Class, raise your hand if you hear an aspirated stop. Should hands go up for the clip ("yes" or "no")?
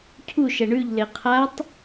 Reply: yes